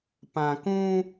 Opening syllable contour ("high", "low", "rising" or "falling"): low